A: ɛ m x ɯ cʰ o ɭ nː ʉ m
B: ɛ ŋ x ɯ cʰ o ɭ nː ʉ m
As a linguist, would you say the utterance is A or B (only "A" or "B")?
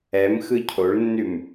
A